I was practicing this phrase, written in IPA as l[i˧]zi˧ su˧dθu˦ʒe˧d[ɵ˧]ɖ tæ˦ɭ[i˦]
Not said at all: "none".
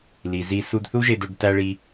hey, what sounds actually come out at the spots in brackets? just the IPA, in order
i˨, o˧, i˦

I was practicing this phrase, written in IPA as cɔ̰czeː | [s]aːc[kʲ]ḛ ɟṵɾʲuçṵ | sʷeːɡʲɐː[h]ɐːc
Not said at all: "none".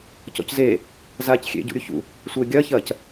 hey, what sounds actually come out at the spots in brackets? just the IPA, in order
z, xʲ, ç

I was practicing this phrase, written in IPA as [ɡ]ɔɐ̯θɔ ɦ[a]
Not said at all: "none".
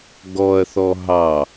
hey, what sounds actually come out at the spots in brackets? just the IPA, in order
ɡ, ɑ

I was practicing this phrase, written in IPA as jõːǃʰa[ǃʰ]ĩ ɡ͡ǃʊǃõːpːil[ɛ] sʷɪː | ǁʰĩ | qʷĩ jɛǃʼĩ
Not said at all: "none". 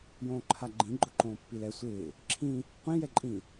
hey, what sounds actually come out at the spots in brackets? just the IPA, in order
ɡ͡ǃ, ɛ

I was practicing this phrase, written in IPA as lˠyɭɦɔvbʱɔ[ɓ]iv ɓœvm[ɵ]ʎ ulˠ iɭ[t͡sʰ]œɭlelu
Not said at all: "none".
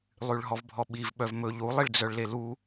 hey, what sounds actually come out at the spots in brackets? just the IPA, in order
ɓ, ɵ, d͡z

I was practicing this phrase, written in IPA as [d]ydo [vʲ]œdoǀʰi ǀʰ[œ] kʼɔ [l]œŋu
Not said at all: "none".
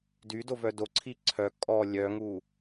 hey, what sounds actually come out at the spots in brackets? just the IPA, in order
d, v, œ, lʲ

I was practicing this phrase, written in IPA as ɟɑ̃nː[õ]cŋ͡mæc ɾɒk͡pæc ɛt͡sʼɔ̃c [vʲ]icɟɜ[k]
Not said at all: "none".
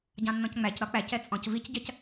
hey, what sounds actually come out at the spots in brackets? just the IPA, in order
ɔ̃, v, c

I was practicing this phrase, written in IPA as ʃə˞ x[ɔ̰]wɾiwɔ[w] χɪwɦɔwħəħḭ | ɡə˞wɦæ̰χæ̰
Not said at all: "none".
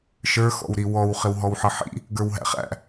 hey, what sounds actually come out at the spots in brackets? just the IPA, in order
ɔ̰, w

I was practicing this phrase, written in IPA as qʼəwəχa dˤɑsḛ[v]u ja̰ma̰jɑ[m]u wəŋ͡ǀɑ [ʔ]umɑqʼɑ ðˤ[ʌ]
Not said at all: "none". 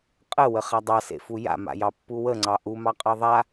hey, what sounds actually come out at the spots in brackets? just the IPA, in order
f, pː, ʔ, a

